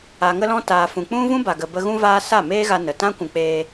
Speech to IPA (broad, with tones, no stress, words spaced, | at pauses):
a˨ŋə˧lɔ̃˧ taː˨fũ˨ k͡pũ˦ vũ˦ba˨ɡə˨bə˧ ɣũ˧vaː˧ sa˦˨meː˦ɣa˧nə˨ tã˦kʷũ˨k͡peː˧